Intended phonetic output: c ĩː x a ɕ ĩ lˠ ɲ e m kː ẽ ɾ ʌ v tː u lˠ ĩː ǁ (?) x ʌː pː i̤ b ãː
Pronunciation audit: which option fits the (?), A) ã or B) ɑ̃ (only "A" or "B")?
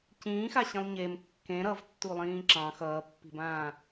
B